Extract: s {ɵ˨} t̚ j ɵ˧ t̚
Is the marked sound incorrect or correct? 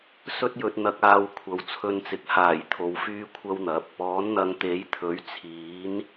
incorrect